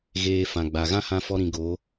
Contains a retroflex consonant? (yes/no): no